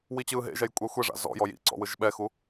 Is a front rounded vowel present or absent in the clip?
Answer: absent